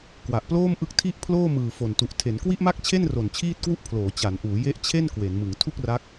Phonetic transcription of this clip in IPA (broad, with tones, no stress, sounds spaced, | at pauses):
k w a˨˩ ʔ p l oː˥˩ m ʔ ɯ˦˥ k̚ tʰ i˥˩ ʔ pʰ l oː˥˩ m ɯː˨˩ f o˨˩ n t u˨˩ ʔ tʰ e˩˦ n k w i˥˩ ʔ m a˥˩ k̚ t͡ɕʰ e˥˩ n r o˨˩ n t͡ɕʰ iː˥˩ t̚ k w u˥˩ ʔ pʰ l oː˩˦ t͡ɕ a˩˦ n ʔ uː˩˦ j e˦˥ ʔ t͡ɕʰ e˥˩ n k w e˩˦ n m ɯ˩˦ ŋ tʰ u˥˩ k̚ r a˦˥ k̚